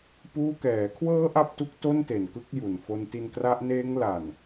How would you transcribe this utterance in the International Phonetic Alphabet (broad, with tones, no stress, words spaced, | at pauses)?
puː˥˩ kɛː˩˦kʰwɤː˦˥ ʔa˥˩p̚tu˦˥k̚ to˥˩nte˨˩n kɯ˦˥k̚ju˨˩nfo˧nti˧n kra˦˥ʔ neː˦˥ŋla˨˩n